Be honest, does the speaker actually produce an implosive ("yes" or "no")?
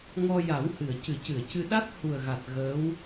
yes